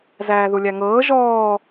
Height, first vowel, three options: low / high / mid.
low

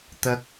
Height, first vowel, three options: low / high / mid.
low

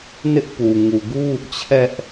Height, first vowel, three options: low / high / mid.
high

